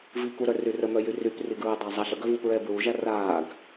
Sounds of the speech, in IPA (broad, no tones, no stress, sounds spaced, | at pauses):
v i k u ɾ œ r y r ə m œ j y r y p r i ɡ ɹ ɛ dˤ a zˤ a ɬ ə ɡ œ v u p ɹ ɛː b ɹ u ʒ a r aː ɡ